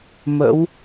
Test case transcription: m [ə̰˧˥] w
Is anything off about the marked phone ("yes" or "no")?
no